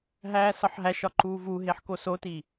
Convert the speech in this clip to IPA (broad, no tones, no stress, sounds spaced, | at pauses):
ɦ æː s ɒ ħ ɦ æ ʃ ɒ ǃ uː v u ɦ e ħ k o s o t i